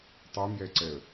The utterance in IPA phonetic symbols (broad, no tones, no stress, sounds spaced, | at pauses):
tˤ i m j ɛ ǀ ɛ ə̯